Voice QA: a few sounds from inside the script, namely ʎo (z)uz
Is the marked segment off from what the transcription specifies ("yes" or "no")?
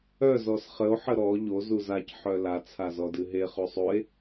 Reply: no